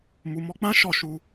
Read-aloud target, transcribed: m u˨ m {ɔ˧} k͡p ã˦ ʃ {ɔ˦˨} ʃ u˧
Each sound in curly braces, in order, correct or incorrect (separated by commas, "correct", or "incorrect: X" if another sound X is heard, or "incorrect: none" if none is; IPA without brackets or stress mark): correct, correct